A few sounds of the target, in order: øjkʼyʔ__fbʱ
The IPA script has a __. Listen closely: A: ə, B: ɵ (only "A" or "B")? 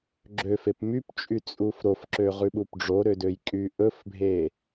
B